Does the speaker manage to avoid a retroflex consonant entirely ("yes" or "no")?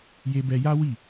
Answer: yes